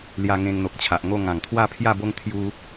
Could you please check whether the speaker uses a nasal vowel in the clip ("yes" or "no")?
yes